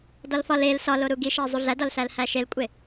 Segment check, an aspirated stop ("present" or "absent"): absent